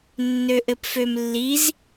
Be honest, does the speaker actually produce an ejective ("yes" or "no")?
no